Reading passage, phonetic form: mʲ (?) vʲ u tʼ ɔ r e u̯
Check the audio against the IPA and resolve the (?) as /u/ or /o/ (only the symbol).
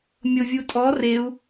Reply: o